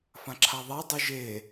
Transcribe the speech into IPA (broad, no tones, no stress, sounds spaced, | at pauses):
f ã ǁʰ a ðˤ a dˤ u ʒ e